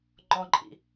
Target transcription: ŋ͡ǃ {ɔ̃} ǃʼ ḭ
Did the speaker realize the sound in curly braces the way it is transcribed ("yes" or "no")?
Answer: yes